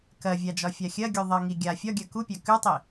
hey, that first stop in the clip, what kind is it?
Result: plain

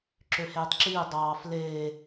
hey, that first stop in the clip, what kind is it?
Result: click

